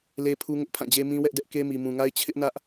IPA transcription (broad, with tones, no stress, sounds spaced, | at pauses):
l e˦ pʰ u˦ ŋ ʊ˦ ʔ pʰ ã˦˨ d͡ʑ e˦ m ĩ˦ w ɛ˦ ʔ d ɛ˦ ʔ k e˦ m i˨ m ũ˨ ŋ a˦ ɪ̯ t͡ɕʰ ɪ˦ ʔ n ä˦ ʔ